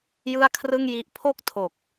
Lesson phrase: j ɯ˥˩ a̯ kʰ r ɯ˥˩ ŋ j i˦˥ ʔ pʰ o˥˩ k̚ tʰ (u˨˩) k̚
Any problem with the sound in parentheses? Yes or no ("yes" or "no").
yes